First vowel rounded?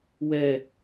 no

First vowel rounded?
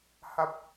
no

